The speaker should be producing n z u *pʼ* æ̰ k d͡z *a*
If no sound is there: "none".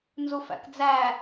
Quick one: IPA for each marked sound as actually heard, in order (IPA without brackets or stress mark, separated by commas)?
f, æ